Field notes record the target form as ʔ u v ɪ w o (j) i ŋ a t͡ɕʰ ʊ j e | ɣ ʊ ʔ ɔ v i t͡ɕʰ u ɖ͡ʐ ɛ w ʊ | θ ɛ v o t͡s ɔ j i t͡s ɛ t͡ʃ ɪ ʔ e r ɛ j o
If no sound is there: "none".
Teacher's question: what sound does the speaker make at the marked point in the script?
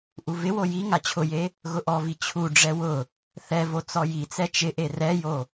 j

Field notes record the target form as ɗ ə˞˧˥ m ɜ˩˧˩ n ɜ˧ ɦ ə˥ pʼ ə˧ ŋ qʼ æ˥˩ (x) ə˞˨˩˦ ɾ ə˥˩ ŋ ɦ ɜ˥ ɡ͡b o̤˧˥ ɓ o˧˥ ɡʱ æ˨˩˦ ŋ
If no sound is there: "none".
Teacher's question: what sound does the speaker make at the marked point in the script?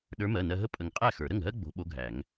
x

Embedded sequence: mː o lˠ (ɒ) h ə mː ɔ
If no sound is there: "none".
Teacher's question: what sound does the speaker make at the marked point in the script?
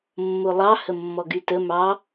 ɑ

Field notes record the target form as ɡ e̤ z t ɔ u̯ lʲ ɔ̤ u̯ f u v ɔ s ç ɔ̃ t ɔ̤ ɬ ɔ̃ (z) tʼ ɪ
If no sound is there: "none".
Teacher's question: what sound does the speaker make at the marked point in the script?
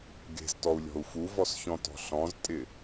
z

